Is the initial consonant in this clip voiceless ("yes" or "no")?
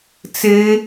yes